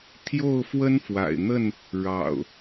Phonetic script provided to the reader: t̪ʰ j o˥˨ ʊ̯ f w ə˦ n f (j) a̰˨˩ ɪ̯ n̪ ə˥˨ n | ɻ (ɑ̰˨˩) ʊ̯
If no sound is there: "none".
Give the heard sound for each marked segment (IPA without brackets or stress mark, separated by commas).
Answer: w, ɑ̰˨˩